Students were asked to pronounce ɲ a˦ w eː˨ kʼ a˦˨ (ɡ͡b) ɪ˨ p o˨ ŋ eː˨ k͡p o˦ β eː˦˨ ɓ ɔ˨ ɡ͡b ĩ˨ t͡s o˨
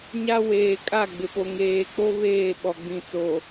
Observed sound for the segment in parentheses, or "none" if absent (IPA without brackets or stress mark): ɡ͡b